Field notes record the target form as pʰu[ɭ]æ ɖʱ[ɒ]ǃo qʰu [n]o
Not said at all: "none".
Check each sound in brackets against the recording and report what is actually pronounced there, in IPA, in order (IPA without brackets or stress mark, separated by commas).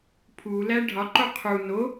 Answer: l, ɒ, n